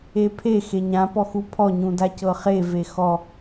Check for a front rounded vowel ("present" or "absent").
absent